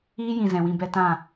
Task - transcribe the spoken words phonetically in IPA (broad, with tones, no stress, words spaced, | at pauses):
iː˦jĩ˨ zɛ̃˨wĩ˧ bɛ˧tã˦˨